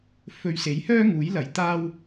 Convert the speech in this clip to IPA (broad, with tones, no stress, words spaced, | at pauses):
fɵ˨ɥ se˨˥jhœː˥ŋuː˨˥jlɐ˨˥j t̪aː˥w